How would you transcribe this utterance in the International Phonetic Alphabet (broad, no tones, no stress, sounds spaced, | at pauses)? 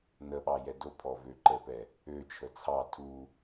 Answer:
n ə ɓ ɑ j ɛ d o pʰ ɔ v ø ǃ ə p ɛ | ø t͡ʃʰ ə t͡sʰ ɑ tʰ u